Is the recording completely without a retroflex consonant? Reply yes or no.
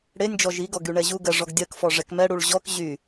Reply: no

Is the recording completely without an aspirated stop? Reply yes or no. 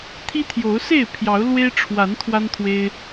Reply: no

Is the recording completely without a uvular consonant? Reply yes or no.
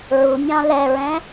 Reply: yes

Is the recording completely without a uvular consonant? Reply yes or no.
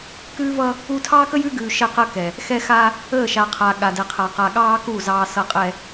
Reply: no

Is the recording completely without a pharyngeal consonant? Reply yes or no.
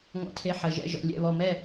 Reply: no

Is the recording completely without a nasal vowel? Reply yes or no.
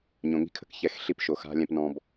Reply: no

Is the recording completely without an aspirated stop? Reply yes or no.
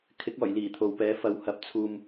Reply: no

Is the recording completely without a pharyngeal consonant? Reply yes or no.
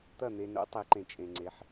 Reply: no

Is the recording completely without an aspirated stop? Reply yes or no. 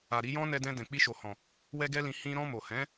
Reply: yes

